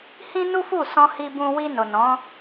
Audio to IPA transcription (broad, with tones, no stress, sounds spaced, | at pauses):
h ĩ˦ n u˦ f u˦˨ s ɔ̃˧ h i˧ b ũ˧ w i˧ n o˨ n ɔ̃˨˦